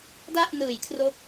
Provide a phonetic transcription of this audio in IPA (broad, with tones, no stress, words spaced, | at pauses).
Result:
da˥˩ʔnɯː˩˦jkʰro˦˥k̚